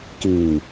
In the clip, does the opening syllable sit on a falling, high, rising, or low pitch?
low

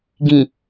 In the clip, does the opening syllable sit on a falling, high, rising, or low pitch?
low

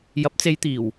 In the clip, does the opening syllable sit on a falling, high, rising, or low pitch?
rising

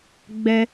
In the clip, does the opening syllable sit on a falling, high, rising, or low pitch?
high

